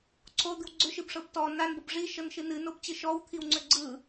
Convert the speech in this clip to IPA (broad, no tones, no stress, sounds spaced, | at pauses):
ǀʰ o d̪ ɨ w ɡ͡ǀ ʏ ʃ ɨ b ʂ ɤ b t ɔ n a n b ɤ b ʐ i ʃ ɤ n ʃ ɨ n ɨ n o b t͡ɕ ɨ ʃ ɔ w t̪ʰ i w ŋ͡ǀ ʏ ɡ͡ǀ ɯ